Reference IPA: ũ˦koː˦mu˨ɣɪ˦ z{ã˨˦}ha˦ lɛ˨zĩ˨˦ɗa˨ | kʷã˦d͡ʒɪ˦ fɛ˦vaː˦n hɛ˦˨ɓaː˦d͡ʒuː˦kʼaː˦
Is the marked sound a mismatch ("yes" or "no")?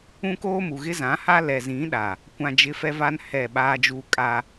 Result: no